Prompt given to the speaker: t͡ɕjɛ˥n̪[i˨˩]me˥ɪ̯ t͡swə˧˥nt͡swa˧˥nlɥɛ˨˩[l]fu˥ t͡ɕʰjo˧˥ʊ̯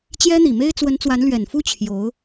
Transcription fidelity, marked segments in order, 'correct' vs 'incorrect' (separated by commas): correct, incorrect